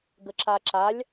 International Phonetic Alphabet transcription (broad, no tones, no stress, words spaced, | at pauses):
ɡəǁaǁalʲ